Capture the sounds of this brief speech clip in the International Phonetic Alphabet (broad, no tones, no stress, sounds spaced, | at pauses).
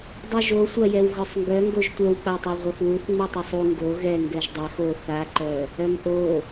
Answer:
dˤ u ʒ o sʷ a j ɛ w ɣ œ sˤ ŋ ɡ œ ŋ ɡ o ʒ tʷ œ w k͡p a tˤ œ ʁʷ œ x w u θ ŋ͡m u tˤ œ sˤ u ŋ ɡ o ɣ ɛ ŋ ɡ ɛ ʒ dˤ ɛ x o θ a ǃ œ | œ m ʔ o